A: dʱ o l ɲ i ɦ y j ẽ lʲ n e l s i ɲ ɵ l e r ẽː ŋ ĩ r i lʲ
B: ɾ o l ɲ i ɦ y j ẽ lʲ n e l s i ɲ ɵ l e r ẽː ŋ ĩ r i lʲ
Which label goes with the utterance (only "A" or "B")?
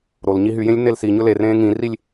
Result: B